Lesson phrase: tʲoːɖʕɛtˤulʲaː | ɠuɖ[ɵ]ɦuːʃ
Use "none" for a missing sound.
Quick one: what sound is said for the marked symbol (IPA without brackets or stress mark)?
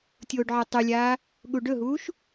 ɵ